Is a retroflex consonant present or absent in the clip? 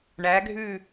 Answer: present